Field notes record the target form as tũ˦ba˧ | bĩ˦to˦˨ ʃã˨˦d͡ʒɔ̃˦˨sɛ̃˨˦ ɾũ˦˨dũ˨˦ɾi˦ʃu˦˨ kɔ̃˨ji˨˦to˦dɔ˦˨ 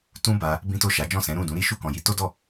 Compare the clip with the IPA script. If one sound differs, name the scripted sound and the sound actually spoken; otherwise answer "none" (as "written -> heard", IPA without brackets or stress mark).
ã˨˦ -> a˨˦